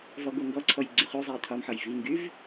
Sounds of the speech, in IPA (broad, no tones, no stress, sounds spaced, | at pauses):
v ɔ ɡ o ŋ ɡ ɔ ǀʰ ɔ j ɡ͡ǀ y χ y zˤ ɛ i̯ t̪ʰ ɒ m ħ ɒ j v i ŋ ɡ y v